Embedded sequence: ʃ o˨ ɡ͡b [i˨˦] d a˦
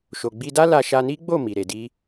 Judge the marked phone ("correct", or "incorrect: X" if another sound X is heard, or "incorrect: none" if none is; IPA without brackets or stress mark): incorrect: i˧